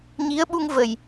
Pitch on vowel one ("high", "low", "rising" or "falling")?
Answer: rising